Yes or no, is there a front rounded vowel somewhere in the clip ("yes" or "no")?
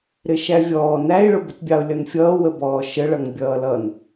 no